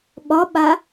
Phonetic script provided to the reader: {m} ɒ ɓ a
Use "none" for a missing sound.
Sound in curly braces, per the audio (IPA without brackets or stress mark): ɓ